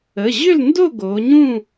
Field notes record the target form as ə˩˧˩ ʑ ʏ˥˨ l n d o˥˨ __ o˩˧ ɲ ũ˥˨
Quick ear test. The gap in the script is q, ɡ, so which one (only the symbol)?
ɡ